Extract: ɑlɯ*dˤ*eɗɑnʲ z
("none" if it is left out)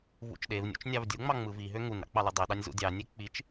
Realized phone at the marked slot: dˤ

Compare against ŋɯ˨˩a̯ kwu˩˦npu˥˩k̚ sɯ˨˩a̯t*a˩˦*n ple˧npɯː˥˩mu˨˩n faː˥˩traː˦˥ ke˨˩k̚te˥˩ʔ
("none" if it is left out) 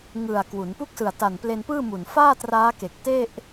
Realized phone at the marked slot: a˨˩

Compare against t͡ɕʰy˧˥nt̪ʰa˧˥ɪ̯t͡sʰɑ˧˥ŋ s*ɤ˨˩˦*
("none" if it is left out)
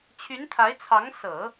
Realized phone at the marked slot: ɤ˨˩˦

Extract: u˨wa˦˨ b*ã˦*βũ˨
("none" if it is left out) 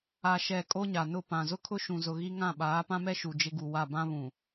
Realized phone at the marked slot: ã˦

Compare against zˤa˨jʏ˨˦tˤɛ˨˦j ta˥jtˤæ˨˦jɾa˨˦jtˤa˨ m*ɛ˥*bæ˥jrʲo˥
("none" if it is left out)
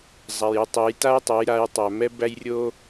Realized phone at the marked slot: ɛ˥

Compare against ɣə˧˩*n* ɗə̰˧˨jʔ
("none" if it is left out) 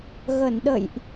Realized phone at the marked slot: n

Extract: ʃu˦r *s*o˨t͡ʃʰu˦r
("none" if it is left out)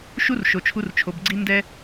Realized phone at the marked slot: ʃ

